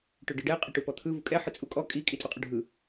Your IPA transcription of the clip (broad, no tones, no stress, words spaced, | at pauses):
ʈɵɖɯɖɛ qʼɵʈupɔt̪ʰɯ vukʼɛħɯ t͡sʼukʼɔ kʼikʼi tʼuqʼɵɖʱɯ